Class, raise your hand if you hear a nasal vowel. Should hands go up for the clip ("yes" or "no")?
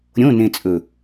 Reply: yes